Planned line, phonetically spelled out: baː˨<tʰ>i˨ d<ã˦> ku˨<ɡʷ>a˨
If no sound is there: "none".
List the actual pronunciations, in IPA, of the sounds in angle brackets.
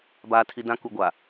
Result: tʰ, ã˦, ɡʷ

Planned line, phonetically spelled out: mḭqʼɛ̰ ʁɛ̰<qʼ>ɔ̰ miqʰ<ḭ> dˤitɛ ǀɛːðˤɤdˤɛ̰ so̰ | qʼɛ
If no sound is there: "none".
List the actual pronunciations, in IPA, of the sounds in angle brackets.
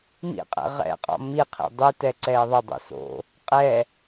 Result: qʼ, ḭ

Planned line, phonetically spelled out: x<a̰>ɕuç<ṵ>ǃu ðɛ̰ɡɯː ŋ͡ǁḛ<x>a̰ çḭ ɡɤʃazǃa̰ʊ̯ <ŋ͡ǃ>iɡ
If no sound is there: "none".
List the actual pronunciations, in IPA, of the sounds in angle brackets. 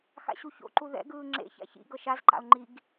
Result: a̰, o̰, ç, ŋ͡ǃ

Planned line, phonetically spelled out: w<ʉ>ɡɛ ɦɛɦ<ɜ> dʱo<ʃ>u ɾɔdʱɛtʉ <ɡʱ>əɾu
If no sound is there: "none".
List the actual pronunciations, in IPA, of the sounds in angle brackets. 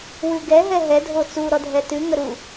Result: ʉ, ɛ, t͡s, ŋ

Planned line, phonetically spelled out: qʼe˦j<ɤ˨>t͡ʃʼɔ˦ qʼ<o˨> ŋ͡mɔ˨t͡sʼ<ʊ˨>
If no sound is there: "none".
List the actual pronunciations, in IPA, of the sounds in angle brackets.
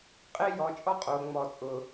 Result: ɔ˨, o˨, ʊ˨

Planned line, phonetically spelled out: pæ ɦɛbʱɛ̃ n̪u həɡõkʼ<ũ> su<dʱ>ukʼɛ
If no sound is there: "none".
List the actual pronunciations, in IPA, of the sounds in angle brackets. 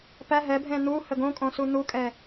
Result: õ, n̪

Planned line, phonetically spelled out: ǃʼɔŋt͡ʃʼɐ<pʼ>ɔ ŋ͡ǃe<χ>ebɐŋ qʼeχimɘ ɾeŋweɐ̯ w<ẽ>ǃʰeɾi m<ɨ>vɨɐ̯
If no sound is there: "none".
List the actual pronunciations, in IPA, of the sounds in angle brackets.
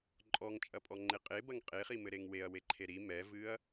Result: pʼ, qʼ, e, ɛ

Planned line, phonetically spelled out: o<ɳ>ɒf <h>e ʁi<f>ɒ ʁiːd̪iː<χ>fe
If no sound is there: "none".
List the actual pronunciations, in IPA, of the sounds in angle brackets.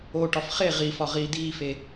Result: ʈ, χ, f, none

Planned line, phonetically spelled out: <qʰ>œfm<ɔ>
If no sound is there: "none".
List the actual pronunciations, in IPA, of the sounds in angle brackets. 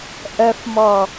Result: ʔ, ɔ

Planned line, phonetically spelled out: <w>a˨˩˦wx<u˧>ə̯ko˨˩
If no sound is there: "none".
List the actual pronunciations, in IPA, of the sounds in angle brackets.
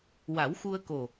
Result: w, u˧

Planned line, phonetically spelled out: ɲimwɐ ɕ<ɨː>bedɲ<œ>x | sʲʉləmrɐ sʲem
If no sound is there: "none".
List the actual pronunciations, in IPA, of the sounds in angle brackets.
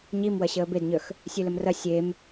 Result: əː, œ

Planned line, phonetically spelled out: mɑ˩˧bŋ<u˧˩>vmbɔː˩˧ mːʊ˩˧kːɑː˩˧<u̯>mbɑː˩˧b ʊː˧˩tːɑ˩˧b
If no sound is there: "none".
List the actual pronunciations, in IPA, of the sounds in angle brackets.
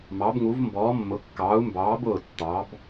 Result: u˩˧, u̯

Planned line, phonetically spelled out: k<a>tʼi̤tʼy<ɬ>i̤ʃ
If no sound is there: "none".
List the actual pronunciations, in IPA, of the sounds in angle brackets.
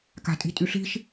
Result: a̤, ɬ

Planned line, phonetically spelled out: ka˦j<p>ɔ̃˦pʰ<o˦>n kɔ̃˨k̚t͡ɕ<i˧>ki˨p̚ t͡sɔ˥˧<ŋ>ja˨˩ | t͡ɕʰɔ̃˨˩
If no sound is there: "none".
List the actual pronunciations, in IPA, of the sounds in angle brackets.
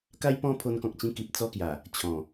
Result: p, o˧, ĩ˧, k

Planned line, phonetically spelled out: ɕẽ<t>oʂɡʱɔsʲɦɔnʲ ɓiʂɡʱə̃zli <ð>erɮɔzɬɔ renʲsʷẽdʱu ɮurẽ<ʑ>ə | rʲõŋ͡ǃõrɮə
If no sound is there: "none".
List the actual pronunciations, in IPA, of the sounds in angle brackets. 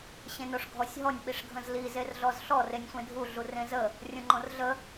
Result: n, z, z

